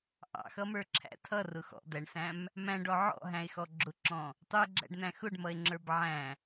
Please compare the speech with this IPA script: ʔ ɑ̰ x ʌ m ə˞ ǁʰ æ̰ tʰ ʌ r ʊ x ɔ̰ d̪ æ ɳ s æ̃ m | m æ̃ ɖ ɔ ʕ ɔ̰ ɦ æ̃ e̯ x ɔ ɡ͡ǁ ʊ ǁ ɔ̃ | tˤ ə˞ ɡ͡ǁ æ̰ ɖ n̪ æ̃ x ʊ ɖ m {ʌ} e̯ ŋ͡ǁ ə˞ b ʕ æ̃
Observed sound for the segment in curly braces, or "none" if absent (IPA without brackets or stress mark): ʌ